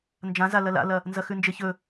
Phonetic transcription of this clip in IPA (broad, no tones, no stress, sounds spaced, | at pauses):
n d͡ʒ ã z a l ɐ l a̰ l ɐ | n z ɐ x ʉ n d͡ʒ e ç ɵ